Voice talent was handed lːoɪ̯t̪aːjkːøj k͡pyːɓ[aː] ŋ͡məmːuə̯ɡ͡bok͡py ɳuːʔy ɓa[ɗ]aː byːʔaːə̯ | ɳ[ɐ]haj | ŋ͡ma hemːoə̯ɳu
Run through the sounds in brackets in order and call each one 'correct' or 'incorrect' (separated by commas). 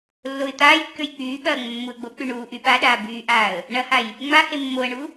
incorrect, correct, correct